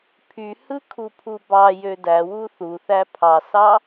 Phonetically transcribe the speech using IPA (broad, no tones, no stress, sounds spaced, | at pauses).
pʰ y h ɯ kʰ u pʰ u b ɑ j ø d æ w u θ u θ æ pʰ ɑ s ɑ